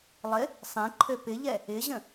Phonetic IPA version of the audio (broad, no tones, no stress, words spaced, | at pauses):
lˠɪ | sˤẽǃʰø pɪʎɛ | ɪʑə̃